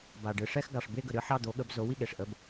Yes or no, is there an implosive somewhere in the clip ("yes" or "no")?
yes